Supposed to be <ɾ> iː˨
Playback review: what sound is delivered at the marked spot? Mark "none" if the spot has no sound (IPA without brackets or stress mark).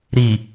ɾ